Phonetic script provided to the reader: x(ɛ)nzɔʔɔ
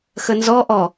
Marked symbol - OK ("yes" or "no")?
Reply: no